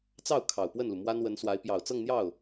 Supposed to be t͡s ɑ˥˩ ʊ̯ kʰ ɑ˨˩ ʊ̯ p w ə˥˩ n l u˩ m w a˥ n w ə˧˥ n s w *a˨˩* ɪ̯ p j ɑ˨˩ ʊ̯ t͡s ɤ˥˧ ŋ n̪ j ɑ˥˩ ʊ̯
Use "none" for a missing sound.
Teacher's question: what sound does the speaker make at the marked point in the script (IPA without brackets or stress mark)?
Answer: a˧˥